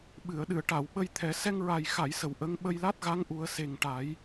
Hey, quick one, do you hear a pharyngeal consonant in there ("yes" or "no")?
no